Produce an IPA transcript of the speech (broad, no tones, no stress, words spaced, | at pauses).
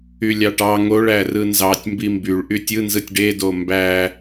ylʲɑʈɑ ŋoɭæ rɯnzɑtʲ mbimbyɭ ʔytʲɯnzɯtʲ ɖedo mbæ